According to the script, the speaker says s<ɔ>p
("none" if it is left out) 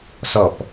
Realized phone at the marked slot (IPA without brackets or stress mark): ɔ